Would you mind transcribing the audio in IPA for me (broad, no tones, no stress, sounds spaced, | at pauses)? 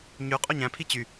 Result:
ɲ y qʼ o ɲ æ̃ pʰ i t͡ɕ y